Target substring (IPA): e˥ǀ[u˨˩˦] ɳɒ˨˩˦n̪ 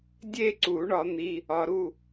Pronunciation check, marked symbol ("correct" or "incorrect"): correct